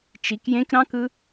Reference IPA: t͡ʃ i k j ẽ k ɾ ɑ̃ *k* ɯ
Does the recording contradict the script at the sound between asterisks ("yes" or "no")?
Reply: no